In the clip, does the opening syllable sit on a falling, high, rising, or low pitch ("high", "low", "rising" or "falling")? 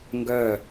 falling